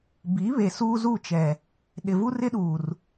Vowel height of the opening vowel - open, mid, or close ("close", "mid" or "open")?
close